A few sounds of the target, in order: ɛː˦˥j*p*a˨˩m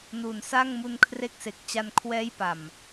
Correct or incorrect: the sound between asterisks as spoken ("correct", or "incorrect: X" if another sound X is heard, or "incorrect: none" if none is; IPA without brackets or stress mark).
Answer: correct